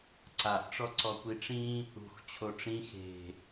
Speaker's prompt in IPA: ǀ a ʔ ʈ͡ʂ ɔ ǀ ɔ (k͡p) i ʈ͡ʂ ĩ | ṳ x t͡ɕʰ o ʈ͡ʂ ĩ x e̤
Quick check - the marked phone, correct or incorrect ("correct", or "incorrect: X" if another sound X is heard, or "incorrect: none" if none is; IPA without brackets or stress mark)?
incorrect: kʷ